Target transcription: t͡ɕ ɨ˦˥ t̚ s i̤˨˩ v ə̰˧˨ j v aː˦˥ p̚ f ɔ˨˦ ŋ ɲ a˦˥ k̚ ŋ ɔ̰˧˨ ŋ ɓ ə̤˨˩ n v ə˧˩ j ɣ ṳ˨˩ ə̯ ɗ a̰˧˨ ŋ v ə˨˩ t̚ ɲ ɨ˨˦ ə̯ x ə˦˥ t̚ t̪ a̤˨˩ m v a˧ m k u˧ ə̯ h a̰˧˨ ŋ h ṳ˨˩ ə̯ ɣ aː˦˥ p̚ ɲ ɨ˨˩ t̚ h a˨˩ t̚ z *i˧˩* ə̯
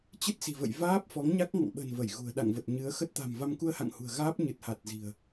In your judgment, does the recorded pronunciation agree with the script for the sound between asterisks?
no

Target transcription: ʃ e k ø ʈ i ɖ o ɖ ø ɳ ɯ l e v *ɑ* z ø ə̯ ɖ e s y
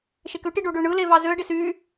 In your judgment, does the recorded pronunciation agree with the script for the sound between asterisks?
yes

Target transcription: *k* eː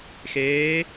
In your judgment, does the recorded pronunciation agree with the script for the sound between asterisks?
no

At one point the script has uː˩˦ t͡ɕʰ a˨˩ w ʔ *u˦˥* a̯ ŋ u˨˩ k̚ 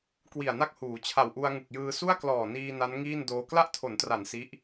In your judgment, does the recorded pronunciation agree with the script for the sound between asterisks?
no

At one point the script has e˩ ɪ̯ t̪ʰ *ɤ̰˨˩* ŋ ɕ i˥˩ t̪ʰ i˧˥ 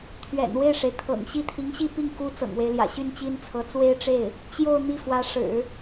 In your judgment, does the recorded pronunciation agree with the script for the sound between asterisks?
yes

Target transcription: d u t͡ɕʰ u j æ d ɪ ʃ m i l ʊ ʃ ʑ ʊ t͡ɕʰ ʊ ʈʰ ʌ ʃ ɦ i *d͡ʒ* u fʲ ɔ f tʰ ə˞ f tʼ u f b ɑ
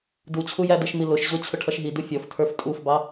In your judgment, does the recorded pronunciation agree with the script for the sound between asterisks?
no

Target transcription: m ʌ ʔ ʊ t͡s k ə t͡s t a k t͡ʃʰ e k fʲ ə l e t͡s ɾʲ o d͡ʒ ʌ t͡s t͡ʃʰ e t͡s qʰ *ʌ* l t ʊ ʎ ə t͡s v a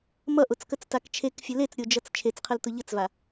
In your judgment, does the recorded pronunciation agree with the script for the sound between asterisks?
no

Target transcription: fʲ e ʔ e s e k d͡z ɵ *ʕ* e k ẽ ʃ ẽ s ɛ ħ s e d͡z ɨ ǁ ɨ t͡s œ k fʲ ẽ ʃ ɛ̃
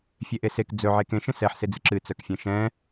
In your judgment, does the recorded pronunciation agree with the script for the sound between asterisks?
yes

